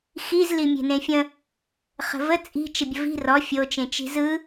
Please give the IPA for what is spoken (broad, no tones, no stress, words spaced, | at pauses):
xizli mʲe̤nẽfʲə̃ | χə̤və t͡sʼi̤ t͡ʃəbʲəvi̤ rɔ fʲot͡ʃẽt͡ʃi̤ zɯ